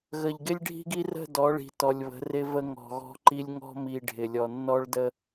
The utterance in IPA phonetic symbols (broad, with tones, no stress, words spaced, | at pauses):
ɣə˨ʎɡɪ˦lʲɖʱi̤˦ɡi˦ rə̤˦˨ dɔ˨˦ɭi̤˨tɔ˨lʲβə̤˨˦ rɪ˦və˦ ŋɔ̤˨ɣɔ̤˦ǃi˦lʲ ŋɔ̤˦mi˨ ɖʱɪ˨lʲɔ˨nːɔ˦ɭ də˦